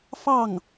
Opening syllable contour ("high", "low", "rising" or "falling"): falling